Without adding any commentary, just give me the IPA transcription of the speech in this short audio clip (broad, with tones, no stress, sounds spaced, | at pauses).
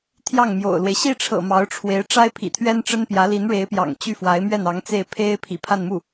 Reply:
t̪ʰ j ɑ˥˩ ŋ m j o̰˨˩ ʊ̯ l w e˦ ɪ̯ ɕ i˥˩ ʈ͡ʂʰ ɤ̰˨˩ m ɑ˧˥ ʊ̯ ʈ͡ʂʰ w e˧˥ ɪ̯ ʈ͡ʂ a˥ ɪ̯ pʰ ḭ˨˩ t̪ʰ ɥ ɛ˥ n ʈ͡ʂ ə˥ n p j ä˧˥ l i˧˥ n ɻ e˧˥ ɪ̯ p j ɑ̰˨˩ ŋ t͡ɕ y˥˩ f w a˧˥ ɪ̯ m ɥ ɛ˥˩ n ɑ˧˥ ŋ t͡s e˥˩ ɪ̯ pʰ e˥ ɪ̯ pʰ ḭ˨˩ pʰ a˥˧ n m u˥˩